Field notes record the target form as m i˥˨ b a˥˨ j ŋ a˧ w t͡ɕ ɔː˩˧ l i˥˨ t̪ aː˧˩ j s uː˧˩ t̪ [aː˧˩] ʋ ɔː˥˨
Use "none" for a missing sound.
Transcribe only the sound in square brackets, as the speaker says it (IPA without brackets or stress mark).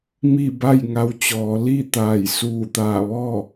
aː˧˩